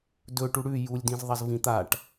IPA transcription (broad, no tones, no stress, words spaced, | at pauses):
dɵ ʈuɽʉ julʲdĩzðˤɐz vĩt̪aʈ